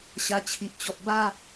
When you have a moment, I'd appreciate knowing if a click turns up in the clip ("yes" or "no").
no